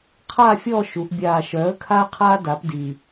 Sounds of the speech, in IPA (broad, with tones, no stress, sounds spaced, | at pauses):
qʰ aː˥˨ fʲ ɔː˥˨ ʃ u˩˧ ʔ bʲ aː˨˩ ʃ œː˩˥ ə̯ kʰ aː˦ qʰ aː˦ d a˩˥ p d i˨˩